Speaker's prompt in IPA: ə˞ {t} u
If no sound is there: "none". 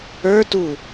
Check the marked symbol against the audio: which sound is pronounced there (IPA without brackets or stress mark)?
t